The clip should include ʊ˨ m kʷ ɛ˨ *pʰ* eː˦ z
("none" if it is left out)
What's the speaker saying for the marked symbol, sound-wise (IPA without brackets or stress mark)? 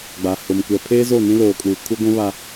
pʰ